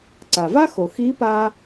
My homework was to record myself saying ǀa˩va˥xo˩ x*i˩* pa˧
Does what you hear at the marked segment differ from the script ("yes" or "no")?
yes